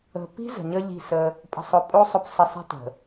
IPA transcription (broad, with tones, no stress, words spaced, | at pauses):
ə̤˨pi̤˦ zə̤˨ɲə˦ʎi̤˦˨sə˦ | pʼə̤˨sˤʊ˨pʼo˦ sˤʊ˨psə˨ sˤi̤˦tə̤˨